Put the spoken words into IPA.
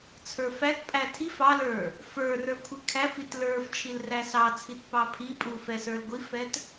t͡sʰ ə˞ f æ t pʼ æ tʰ i f ɑ l ə˞ | f ə˞ r ə˞ kʷʰ i kʰ æ f i t l ə˞ f t͡ʃʰ i l r æ s ɑ t͡sʰ i t p ɑ pʰ i pʼ u f ɛ s ə˞ l ɡʷ i f ɛ t

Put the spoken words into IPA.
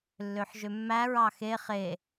lː ø ħ ʒ ø mː æ ɹ ɑ x e χ e

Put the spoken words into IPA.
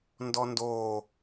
n d ɔ n d o

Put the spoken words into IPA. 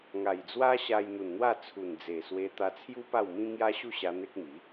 ŋ a˨˩ j d͡z w a˦ ɕ a˧ j n̪ u˨˩ n n̪ w a˥˧ t͡sʰ u˨˩ n d͡z e˨˩ s w e˧ t̪ a˧ t͡sʰ j u˦ p a˥˧ w m ĩ˦ ŋ j a˦ ɕ u˥˧ ɕ a˧ n̪ e˦ k̚ m i˨˦

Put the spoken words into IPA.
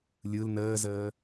lʲ ɯ l n əː z əː

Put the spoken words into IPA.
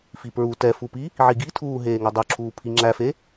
f i p ɹ u t ɛ f u p i | ʕ i ɡ i tʰ uː ɦ eː ŋ o dˤ ʉ ǁʰ uː pʰ i ŋ͡ǁ æ f e

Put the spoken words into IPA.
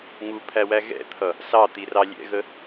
ŋ u pʰ æ w æ ɣ ɛ̰ t̪ʰ ʌ | s ɑ t̪ i r ɑ lʲ ɛ̰ ɣ ə

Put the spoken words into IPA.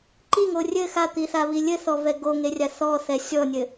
ǃ i ŋ o rʲ ɘ x a t̪ i θ a β i lʲ ɘ θ ɔ v ɛ ɡ o ŋ e rʲ a θ ɔ θ ɛ sʲ ɔ nʲ ɘ

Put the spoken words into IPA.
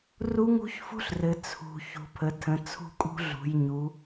r u˦˥ ŋ ṳ˦˥ ç f ṳ˦˥ ɬ r ɘ˩˧ t͡sʰ ṳ˩˧ ç ṳ˩˧ pʰ ə˩˧ tʰ ə̃˩˧ t͡sʰ ṳ˦˥ kʼ ṳ˦˥ ɮ ṳ˩˧ j ɲ u˩˧

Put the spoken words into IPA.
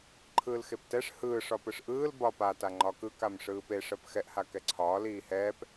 ǃʰ ɯː l x e p t ɛ ʂ h ɯː ʂ ɒ p ɯ ʂ ʔ ɯː l b ɒ p a t a ŋ͡ǃ ɒ k ɯ k a m ʂ ɯː p e ʂ ɜ p x ɛ ʔ h a k ɛ ǀʰ ɒː l iː h ɛː p

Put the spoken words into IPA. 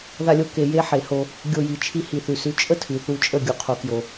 ð a˧ lʲ o˧ k e˨ j e˦ ħ e˨ h o˧ | ɡʲ o˧ j i˨ t͡ʃʰ i˧ h i˨ θ ʉ˨ s ʉ˨˦ t͡ʃʼ ə˦ tʰ ʉ˨ θ u˧ t͡ʃʼ ə˦˨ ɡʲ u˧ qʰ o˧ k j o˨

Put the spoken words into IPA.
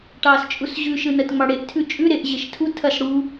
ʈ ɑː s t͡ʃʼ u s ʑ ʉ ʃ ɯ n ɐ t ŋ͡m ɑ ɽ e ʔ tʰ ʉ t͡ʃʼ ʉ ɾ e ʔ ʑ e ʃ tʰ u tʰ ɐ s ɽ u

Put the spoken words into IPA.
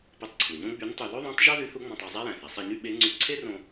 p e˧ tˤ ǀʰ u˩ ɲ õ˥ ɡ͡b y˧˥ n tˤ y˧ l o˥ ðˤ æ̃˧˥ tˤ ʒ ɑ˥ ð y˧˥ θ u˧˥ ŋ͡m ɑ̃˧ tˤ æ˧ zˤ æ˥ j æ̃˩ θ æ˩˧ sˤ e˧ ɲ y˥ ɓ e˧˥ ŋ͡ǀ y˧˥ ǀʰ e˥ r õ˧

